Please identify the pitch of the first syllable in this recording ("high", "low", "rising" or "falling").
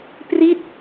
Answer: falling